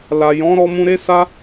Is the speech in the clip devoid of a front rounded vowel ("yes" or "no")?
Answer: yes